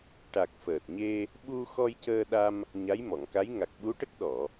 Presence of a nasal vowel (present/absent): absent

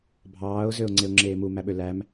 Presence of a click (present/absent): present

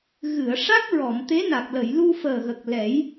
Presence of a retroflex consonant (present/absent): present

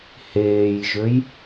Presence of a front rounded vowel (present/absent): present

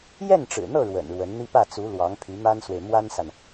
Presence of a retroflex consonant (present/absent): present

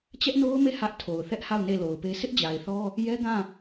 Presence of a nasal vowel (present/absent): present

